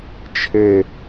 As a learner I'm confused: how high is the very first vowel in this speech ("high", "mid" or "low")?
mid